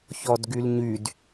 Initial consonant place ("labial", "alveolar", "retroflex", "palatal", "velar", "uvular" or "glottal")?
palatal